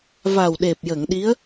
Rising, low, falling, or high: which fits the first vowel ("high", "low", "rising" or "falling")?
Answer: low